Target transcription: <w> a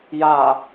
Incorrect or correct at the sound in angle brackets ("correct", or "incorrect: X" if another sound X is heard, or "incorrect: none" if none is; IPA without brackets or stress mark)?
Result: incorrect: j